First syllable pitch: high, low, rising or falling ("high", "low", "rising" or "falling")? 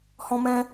high